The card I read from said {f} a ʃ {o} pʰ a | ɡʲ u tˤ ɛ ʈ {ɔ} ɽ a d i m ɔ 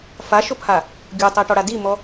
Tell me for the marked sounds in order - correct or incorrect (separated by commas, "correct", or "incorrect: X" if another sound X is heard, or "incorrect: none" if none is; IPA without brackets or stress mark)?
correct, correct, correct